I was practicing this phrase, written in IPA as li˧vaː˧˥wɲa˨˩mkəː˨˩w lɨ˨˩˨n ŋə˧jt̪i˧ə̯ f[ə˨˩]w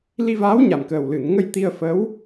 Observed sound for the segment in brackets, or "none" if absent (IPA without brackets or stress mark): ə˧˥